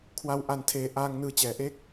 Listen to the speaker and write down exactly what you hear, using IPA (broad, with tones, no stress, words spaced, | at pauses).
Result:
kʰwa˧wʔa˨˩ntʰeː˨˩ʔaː˧ŋ nɯː˧t͡ɕɛː˨˩ʔe˥˩k̚